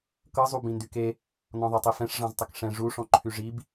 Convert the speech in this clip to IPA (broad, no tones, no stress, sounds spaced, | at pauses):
k ɤ zˤ u b ĩ n d y k e | n ɔ̃ ðˤ e tˤ i f ɛ̃ ʂ ʐ ɑ̃ z tˤ ə k ʂ ɛ̃ ʐ u ʂ ɔ̃ ǃʰ y ʐ i b